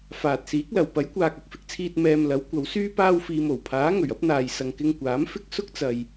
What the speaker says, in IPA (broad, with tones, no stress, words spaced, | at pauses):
faː˨t̚siː˨˥k̚lɐ˨w pɐ˨˥jkʷaː˨k̚ ɐ˨k̚fɪ˧k̚t͡sʰiː˧t̚ mɛː˧m lɐ˨˥wkʷɐ˨˧wsyː˥ paː˧wfiː˨mo˨˩w pʰaː˨˥ŋɵ˨˩ɥ ɐ˥p̚n̪aː˨j sɐ˨ŋkɪ˧ŋkʷaː˨˥m fɪ˥k̚sʊ˥k̚ t͡sɐ˨j